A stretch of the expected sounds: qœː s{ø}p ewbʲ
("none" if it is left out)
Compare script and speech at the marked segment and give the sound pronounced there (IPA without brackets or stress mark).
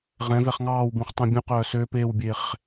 ø